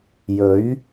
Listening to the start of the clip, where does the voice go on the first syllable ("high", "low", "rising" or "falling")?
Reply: rising